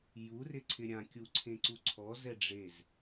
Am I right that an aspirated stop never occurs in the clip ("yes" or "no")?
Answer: no